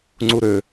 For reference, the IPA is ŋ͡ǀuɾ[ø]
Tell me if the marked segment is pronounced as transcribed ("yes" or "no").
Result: yes